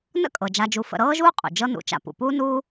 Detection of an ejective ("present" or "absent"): present